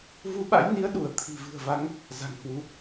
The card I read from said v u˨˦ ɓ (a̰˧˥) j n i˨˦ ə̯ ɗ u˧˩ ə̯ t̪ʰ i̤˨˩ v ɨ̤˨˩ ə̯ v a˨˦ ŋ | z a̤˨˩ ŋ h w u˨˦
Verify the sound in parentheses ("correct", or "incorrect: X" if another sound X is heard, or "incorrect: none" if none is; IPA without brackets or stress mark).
correct